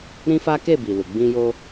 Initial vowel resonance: nasal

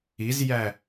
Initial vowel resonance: oral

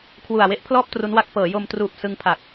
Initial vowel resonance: oral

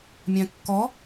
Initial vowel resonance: nasal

